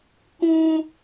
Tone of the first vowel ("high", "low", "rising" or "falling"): high